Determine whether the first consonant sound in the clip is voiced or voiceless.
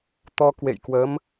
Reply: voiceless